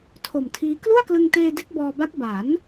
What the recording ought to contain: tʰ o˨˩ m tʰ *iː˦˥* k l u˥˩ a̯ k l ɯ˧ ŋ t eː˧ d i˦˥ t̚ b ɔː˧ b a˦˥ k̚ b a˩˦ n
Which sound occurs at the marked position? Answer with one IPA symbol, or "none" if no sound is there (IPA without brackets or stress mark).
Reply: iː˦˥